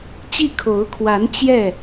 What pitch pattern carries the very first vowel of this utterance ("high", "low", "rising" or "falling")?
falling